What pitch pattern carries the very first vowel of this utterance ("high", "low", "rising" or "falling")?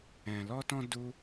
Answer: low